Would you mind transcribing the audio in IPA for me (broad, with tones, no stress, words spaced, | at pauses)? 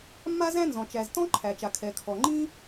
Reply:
mːa˥zæ̃˥nzɔ̃˩ t͡ʃæ˩ztɔ̃˥ ǃʰæ˩t͡ʃa˩ kʰɛ˩kʰɔ˩ ŋ͡ǃĩ˥